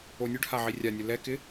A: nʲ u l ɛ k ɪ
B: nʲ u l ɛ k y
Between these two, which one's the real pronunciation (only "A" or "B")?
A